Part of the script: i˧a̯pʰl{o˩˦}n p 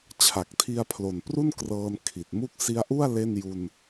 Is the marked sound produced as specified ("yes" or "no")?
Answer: no